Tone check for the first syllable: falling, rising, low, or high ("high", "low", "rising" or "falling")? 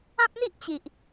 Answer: high